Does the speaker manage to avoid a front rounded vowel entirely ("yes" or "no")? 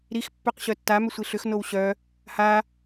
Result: no